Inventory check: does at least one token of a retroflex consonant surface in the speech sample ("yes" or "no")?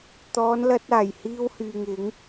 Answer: no